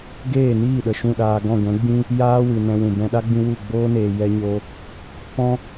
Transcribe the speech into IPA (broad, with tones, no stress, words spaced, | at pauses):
ɡeː˦˨niː˦˨ɗə˨ ʃũ˦˨ɗaː˧ ɡɔ̃˦˨ɡʷɛ̃˨˦ɡ͡bĩ˦ | jaː˦wɨ˨ nɛ̃˧wũ˨ bɛ̃˧ɗa˦ɡ͡bĩ˧ wu˦˨ ɡ͡boː˦neː˨ jɛ˧ɲo˧ | pɔ̃˦